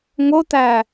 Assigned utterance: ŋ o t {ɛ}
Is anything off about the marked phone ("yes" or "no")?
yes